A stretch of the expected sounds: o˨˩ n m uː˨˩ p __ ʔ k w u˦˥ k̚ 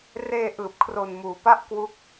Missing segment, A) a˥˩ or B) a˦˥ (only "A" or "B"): A